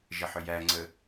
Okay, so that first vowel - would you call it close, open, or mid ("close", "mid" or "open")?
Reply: mid